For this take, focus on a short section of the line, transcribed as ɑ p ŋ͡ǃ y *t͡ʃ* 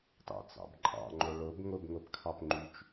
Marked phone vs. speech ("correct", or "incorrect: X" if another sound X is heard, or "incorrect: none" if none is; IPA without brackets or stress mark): correct